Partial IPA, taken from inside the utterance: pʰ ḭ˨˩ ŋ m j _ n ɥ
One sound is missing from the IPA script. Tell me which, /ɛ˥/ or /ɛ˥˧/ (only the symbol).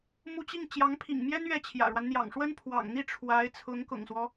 ɛ˥